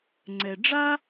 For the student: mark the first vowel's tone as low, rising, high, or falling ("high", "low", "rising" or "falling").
low